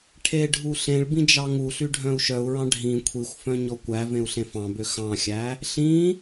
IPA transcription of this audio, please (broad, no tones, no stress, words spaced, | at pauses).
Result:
ʈʰeɖʱu ɬẽɭbĩ d͡ʒɑŋuɬy ɖʱœ̃u̯ʃœu̯ɹɑ̃ ɖʱĩ kʷʰixʷfœ̃ ɲɔkʷævẽu̯ ɬẽfɑ̃bø xɑ̃xʲæ | ɬĩ